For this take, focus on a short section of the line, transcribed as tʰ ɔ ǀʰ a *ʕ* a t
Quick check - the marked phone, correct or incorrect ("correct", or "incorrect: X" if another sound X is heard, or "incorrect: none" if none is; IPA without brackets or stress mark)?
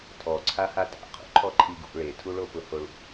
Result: incorrect: h